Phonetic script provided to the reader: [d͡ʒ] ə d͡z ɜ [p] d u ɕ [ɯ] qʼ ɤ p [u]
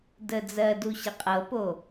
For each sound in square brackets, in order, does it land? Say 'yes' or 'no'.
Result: no, no, no, no

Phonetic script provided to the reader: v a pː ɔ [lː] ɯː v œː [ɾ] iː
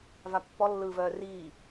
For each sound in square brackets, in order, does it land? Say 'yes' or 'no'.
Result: yes, no

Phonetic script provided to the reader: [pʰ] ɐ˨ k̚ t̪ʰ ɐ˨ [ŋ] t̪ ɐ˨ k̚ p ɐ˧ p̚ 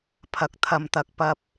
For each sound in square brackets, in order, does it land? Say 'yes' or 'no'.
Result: yes, no

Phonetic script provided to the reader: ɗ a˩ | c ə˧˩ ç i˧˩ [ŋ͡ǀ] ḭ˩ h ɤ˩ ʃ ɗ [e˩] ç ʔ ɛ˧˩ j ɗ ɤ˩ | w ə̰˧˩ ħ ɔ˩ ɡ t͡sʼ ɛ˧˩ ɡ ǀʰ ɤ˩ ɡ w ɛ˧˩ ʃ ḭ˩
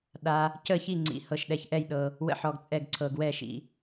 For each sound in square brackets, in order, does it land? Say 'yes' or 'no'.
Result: yes, no

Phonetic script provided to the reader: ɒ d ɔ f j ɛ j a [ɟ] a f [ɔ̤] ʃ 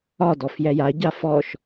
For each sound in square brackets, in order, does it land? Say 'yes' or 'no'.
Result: yes, no

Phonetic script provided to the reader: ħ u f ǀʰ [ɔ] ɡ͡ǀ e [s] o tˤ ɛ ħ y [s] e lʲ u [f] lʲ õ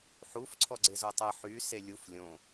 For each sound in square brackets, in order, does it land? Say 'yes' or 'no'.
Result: yes, no, yes, yes

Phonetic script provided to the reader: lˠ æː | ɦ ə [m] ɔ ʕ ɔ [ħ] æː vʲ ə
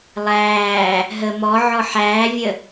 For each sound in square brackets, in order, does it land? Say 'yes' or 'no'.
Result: yes, yes

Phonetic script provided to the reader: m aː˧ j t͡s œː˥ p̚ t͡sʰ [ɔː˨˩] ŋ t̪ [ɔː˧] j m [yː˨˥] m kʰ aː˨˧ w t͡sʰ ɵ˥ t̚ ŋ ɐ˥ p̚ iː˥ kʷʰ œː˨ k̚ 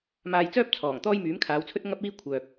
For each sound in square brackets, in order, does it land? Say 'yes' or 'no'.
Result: yes, no, yes

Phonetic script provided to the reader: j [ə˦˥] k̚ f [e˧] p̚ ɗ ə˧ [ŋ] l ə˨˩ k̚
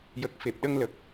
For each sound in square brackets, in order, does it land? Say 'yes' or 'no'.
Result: no, no, yes

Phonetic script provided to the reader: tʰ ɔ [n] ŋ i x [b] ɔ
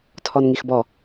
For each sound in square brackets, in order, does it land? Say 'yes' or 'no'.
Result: yes, yes

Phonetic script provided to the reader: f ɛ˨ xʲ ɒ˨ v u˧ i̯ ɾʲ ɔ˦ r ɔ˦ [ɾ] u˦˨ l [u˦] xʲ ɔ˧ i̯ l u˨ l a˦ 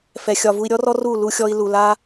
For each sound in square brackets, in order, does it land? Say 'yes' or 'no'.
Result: no, no

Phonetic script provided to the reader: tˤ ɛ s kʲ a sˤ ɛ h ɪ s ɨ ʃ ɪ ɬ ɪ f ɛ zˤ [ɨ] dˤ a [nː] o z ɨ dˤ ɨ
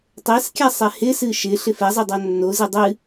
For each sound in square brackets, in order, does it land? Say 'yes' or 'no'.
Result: yes, yes

